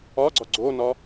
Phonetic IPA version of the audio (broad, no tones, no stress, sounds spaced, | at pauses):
ɒ ɡ͡ǀ ɒ ɡ͡ǀ o n ɒ